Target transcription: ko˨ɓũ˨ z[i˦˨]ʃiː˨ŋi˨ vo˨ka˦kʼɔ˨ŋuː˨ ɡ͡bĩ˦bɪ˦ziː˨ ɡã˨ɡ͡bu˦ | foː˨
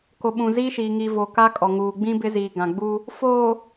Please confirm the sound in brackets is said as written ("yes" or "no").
no